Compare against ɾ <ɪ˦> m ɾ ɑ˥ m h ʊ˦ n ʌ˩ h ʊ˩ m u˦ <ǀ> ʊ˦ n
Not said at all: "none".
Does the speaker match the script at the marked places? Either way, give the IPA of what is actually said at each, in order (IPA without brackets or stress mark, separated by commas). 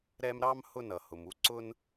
ɛ˦, ǀ